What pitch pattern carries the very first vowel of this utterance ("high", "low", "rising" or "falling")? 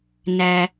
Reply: high